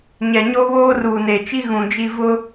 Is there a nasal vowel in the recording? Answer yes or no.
yes